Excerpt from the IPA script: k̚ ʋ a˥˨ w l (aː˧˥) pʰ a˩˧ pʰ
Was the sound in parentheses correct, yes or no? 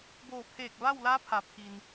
yes